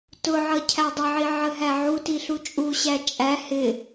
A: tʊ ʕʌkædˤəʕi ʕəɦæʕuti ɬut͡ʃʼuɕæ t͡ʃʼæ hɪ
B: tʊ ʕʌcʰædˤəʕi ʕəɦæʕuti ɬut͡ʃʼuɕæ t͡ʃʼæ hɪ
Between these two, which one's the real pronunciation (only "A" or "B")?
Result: B